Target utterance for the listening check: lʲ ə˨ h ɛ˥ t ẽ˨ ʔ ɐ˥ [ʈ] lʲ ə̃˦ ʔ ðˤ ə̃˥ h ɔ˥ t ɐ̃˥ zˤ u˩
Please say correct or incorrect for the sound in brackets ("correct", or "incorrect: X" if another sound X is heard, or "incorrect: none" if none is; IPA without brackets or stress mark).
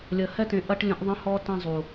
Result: correct